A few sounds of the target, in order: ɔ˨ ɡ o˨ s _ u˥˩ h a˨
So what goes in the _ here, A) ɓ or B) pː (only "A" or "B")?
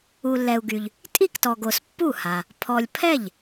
B